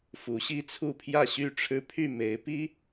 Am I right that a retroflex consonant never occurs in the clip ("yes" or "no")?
no